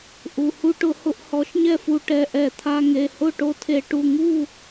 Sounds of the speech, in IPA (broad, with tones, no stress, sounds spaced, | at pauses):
ʔ u˩˧˩ h u˧ ʈ ʊ˧˩˧ h ʊ˧˩˧ ʔ h ɔ˨˥ ʃ ɲ ɛ˥˨ f u˧ ʈ ɛ˩˧˩ ʔ ɛ˧˩˧ t̪ʰ a˧ ŋ e˩˧˩ h ʊ˥˨ ʈ o˧ tʰ e˧˩˧ ʈ u˩˧˩ ŋ u˥˨